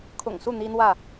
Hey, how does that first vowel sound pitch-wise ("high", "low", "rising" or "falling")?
low